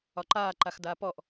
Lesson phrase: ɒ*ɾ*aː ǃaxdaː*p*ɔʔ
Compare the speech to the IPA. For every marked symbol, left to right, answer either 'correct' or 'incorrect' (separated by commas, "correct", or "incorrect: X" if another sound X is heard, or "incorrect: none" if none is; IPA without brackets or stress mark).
incorrect: ǃ, correct